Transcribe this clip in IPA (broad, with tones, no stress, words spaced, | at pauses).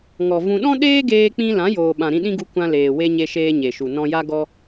ŋɔ˨ vũ˧ ɗɔ̃˦ɗeː˦ɡeː˧k͡pĩ˧ lã˨˦joː˨ɓã˨ ɾĩ˧ɗĩ˦ɡu˧ kʷã˧leː˨ we˧ɲe˧ʃeː˧ ɲe˨ʃu˨ nɔ̃˧ja˦ ɡɔ˦